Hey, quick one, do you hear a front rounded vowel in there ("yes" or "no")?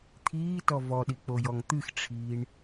no